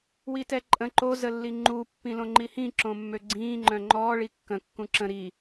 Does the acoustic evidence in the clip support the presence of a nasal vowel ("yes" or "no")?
yes